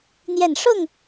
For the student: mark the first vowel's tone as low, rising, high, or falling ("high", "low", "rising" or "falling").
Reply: falling